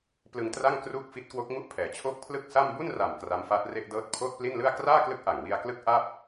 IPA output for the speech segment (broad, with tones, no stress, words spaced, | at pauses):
plɯ˧ŋtra˥˩ŋ kruː˥˩k̚fi˦˥t̚kwo˦˥k̚ ŋu˦˥ʔpʰɛː˩˦t͡ɕʰoː˦˥k̚ pʰlɯ˥˩k̚sa˥˩m bu˥˩nra˨˩m kra˦˥mfaː˦˥t̚re˥˩ʔ dɤː˥˩t̚ pʰoː˥˩t̚pli˥˩nlɯ˥˩a̯ kraː˥˩klɯ˦˥k̚ʔa˨˩ŋ wi˧a̯klɯ˦˥k̚ ʔa˥˩p̚